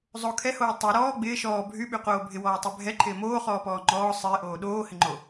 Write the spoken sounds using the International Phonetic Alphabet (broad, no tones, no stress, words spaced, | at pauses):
zˤo kʰɛhoː tˤo ɾɔː ɡ͡bɪː ʃɔː bʱyɓyqoː bʱɪwɔːtˤɛ bʱɛǃʰɪː moːχɔːpɔː ŋ͡ǃɔː sˤɪːʔoː ɗoːhɪŋ͡ǃo